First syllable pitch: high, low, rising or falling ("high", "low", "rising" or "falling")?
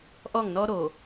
falling